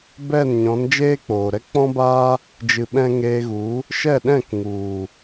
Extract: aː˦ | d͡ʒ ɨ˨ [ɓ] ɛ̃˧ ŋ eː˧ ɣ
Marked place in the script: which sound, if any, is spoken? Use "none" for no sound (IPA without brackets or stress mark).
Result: ɓ